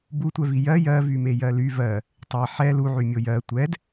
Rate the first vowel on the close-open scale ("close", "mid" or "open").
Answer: close